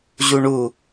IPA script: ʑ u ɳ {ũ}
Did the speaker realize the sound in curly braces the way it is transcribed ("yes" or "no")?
no